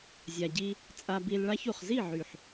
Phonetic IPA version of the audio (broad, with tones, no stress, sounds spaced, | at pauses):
zʲ a˨ ɟ i˧ | t͡sʼ a˧ b i˧ l ɭ a˦ ç u˨ χ z i˦˨ ʕ y˨ ħ